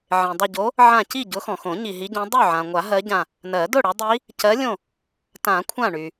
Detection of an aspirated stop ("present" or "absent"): present